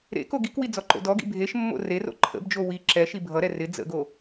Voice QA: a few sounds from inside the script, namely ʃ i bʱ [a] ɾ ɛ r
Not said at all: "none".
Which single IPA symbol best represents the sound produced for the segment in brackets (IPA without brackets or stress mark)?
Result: ʌ